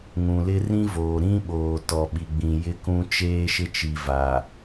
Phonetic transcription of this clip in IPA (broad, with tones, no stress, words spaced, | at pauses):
ŋũ˨lɪ˦rĩ˦voː˨ ɾĩ˦ɓoː˨ tɔ˨ɓi˨ɡ͡bĩ˨ jɪ˦kũ˦ t͡ʃeː˦ʃɪ˦ t͡ʃi˨va˨